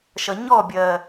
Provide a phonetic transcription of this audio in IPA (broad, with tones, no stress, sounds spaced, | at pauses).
ʃ ʌ˨ ɲ ɔː˦˨ bʲ ɜː˨